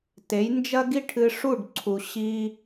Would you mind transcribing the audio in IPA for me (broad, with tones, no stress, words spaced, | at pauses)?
te˩˥jnd͡ʒɐ˥ɡi˥ʈʰɨ˧ ʂu˥˩ɖǀʰu˩ ɕi˧